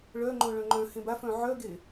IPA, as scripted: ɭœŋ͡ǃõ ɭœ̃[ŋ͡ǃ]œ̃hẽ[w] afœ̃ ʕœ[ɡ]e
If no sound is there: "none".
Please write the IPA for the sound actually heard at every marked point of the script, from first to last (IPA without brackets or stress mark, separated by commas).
ŋ͡ǃ, b, ɡ